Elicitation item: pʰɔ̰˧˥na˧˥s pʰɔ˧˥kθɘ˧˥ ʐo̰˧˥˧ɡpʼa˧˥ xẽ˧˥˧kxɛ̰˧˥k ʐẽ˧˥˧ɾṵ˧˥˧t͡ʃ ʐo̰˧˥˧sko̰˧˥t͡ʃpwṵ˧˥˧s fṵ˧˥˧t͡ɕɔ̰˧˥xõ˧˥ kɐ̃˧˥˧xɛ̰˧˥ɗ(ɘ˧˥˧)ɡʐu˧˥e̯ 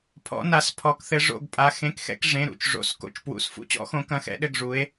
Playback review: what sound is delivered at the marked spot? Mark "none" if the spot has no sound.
ɘ˧˥˧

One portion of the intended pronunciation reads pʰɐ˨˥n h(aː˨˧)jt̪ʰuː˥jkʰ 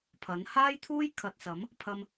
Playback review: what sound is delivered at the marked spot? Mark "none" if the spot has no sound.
aː˥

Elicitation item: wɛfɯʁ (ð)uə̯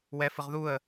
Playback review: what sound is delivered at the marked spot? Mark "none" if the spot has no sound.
ð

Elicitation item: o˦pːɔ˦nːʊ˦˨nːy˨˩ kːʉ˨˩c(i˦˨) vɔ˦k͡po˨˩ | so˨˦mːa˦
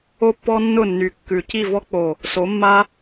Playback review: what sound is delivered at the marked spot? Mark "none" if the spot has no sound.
i˦˨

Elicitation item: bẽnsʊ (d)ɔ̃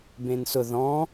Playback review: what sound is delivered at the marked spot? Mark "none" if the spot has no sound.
ð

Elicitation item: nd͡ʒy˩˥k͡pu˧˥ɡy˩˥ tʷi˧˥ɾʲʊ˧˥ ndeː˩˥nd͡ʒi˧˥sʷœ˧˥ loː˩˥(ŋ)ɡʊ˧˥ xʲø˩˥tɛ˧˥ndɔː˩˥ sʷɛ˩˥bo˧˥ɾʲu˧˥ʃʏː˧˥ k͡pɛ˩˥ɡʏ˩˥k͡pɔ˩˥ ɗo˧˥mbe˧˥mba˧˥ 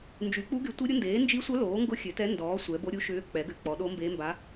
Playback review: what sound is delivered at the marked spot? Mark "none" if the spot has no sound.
ŋ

